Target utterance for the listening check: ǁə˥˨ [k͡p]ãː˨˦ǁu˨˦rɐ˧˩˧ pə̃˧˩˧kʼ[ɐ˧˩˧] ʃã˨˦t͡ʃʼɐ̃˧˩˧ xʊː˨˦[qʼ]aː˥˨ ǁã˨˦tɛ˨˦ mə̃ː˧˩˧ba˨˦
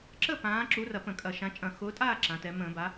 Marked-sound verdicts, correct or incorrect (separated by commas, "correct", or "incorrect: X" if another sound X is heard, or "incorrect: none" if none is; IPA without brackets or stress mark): incorrect: p, correct, incorrect: tʼ